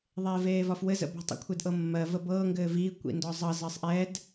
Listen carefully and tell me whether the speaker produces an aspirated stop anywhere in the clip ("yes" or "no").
yes